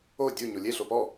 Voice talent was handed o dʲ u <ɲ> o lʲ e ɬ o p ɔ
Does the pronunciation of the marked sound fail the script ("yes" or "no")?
no